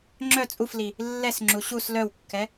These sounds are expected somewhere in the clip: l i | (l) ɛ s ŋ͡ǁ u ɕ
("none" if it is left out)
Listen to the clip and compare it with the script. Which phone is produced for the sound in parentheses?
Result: lː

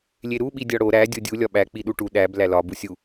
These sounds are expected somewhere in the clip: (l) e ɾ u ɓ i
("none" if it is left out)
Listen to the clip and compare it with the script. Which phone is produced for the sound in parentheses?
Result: lʲ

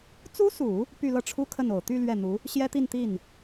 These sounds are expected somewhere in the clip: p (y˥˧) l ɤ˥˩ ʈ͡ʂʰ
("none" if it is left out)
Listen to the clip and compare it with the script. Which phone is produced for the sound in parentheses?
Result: y˥˧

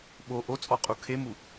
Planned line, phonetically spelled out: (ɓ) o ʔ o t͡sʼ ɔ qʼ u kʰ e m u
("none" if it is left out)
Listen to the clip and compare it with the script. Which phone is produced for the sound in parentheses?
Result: ɓ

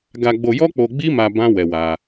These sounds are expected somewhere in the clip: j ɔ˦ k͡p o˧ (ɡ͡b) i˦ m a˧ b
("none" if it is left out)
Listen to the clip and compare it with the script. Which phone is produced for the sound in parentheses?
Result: ɡ͡b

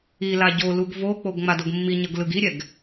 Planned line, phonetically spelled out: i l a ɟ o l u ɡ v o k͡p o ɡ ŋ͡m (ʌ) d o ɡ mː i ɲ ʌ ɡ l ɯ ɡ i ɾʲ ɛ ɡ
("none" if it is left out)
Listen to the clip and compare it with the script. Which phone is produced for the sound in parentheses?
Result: a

